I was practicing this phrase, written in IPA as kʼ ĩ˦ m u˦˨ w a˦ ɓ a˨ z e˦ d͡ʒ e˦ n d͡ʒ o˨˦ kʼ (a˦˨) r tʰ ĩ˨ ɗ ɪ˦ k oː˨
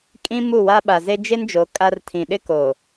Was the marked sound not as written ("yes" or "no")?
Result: yes